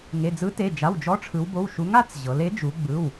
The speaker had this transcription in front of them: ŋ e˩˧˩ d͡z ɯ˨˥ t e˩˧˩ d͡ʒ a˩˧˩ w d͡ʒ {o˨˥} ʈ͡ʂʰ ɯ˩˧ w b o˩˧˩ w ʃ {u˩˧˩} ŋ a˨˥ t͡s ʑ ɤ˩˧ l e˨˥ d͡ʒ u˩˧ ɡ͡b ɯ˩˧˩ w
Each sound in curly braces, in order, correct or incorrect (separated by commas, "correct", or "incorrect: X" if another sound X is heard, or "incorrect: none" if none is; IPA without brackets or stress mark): incorrect: ɔ˨˥, incorrect: u˨˥